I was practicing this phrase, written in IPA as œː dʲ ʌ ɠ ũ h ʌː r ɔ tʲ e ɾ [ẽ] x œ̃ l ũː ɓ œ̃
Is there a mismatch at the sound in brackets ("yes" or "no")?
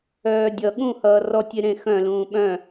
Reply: no